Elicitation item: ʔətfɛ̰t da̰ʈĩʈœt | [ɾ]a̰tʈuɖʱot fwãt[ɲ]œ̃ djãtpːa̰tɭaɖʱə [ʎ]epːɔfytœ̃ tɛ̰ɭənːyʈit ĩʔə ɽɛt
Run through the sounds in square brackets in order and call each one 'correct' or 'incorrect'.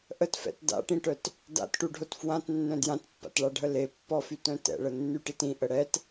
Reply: incorrect: d, incorrect: nː, incorrect: l

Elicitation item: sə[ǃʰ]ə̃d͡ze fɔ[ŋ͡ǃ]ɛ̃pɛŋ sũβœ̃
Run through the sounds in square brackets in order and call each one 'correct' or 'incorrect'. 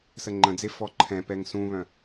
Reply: incorrect: ŋ͡ǃ, incorrect: ǃʰ

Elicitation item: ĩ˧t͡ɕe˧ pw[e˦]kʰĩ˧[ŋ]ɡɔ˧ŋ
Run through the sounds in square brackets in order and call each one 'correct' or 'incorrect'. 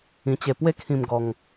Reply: correct, incorrect: m

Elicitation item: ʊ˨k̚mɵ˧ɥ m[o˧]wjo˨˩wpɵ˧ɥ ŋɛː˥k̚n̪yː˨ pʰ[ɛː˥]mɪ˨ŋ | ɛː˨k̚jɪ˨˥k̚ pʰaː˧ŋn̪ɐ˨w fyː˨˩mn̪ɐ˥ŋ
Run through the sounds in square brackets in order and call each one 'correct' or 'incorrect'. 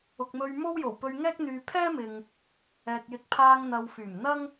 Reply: incorrect: o˥, correct

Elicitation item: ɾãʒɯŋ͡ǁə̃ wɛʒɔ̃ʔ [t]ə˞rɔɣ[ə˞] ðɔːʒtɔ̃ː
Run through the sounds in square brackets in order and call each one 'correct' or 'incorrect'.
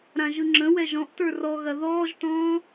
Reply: correct, incorrect: ɐ

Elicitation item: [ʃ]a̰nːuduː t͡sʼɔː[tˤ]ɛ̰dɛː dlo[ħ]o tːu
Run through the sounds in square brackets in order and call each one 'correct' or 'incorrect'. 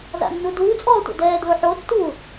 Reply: incorrect: z, incorrect: tʷ, correct

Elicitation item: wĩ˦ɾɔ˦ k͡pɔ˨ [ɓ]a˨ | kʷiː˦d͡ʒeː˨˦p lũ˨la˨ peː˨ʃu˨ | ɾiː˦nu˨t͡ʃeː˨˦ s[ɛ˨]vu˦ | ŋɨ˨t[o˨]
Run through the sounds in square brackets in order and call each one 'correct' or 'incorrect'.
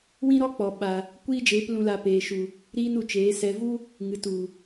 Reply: correct, correct, incorrect: u˨

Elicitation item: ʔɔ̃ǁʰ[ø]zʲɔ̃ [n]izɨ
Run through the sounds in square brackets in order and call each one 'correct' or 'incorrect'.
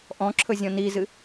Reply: incorrect: ɵ, correct

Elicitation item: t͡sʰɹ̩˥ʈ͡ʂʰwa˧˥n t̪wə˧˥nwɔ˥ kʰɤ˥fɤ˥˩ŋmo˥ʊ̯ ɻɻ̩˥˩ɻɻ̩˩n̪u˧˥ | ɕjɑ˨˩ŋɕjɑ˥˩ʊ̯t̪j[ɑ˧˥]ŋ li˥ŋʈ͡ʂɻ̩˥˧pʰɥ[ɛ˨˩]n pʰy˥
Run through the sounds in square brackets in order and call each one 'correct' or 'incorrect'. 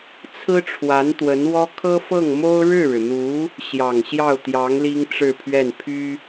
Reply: correct, incorrect: ɛ˥˩

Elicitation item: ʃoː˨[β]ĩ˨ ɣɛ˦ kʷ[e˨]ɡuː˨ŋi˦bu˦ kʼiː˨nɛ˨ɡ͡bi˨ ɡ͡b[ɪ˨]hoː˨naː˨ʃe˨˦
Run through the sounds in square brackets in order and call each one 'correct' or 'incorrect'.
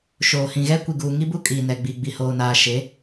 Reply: incorrect: h, incorrect: i˨, incorrect: i˨

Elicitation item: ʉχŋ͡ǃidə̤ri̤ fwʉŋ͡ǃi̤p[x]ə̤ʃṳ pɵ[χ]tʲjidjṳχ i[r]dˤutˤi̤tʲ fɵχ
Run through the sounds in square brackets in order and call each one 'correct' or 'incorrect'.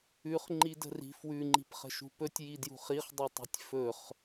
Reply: incorrect: χ, incorrect: none, incorrect: χ

